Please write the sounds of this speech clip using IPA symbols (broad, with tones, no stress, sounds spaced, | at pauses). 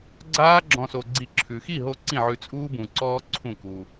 ɡ͡ǀ aː˦ ɡ͡ǁ ɔ̃˧ s o˧ ɡ͡ǀ i˧ ǁʰ ʉ˨ x i˦˨ ɦ o˧ ǀ ĩ˦˨ ʕ ʉ˧ t͡sʼ uː˦ b ũ˨ ǀ ɔː˦ ǀʰ ũ˦˨ k u˧